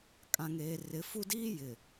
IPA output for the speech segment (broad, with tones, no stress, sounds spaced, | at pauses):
kʼ ã˨ ŋ eː˨ r ɪ˨˦ f u˦ d iː˦ j ɪ˨